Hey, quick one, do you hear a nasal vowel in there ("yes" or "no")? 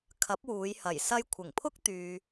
no